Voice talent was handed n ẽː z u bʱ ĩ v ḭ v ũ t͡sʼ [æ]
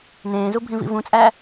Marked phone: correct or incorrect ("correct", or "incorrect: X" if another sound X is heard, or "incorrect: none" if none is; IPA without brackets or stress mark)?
correct